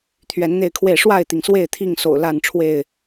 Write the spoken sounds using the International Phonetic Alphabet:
t̪ʰ ɥ ɛ˨˦ n n̪ e˥˨ ɪ̯ kʰ w e˥˨ ɪ̯ ʂ w a˥˨ ɪ̯ t̪ i˩ ŋ s w e˥˨ ɪ̯ t̪ʰ i˥˨ ŋ s o̰˨˩ ʊ̯ l a˥˨ n ʈ͡ʂʰ w e˥˨ ɪ̯

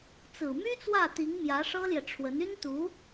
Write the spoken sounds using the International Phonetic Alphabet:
t͡s ɹ̩˨˩ m y˥ t͡s w ä˥˩ t̪ i˧˥ ŋ m j ä˧˥ ʂ ɤ˥ l j ɛ˨ ʈ͡ʂʰ w ə˧˥ n y˥ n t̪ u˧˥

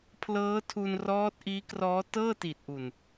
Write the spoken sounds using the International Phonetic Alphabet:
pʰ l ɤː˦˥ tʰ u˧ n r ɔː˦˥ t̚ ʔ iː˦˥ k r ɔː˦˥ t ɤː˥˩ t i˨˩ t̚ ʔ u˨˩ n

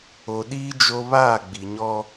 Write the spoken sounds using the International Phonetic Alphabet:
o˨ ɗ iː˦ d͡ʒ o˦ β aː˦˨ ɡ͡b i˨ ɲ ɔ˦

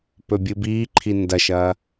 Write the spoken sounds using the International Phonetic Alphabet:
p ɵ bʲ ɨ b iː ǃʰ i n d ɐ ʃ ɐ

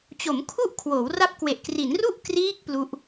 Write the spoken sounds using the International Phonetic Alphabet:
t͡ɕ o˩˦ m kʰ u˦˥ ʔ kʰ w oː˩˦ w r a˦˥ p̚ k w e˨˩ ʔ k r i˩˦ n r u˥˩ ʔ k r iː˦˥ k̚ p l u˦˥ ʔ

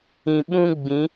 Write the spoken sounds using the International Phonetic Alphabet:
ĩ˨ ɓ ũ˦ ɡ͡b ĩ˨˦

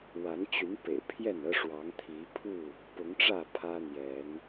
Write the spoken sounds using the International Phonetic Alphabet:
w a˨˦ n t͡ɕ y˨˦ n p ḛ˨˩ ɪ̯ pʰ j ɛ˥˨ n ɤ˦ ʂ w ɑ˨˦ ŋ t̪ʰ i˨˦ pʰ u˥˨ | p ʊ˨˦ ŋ ʈ͡ʂ ä˥˨ pʰ ä˦ n̪ j ɛ˨˦ n

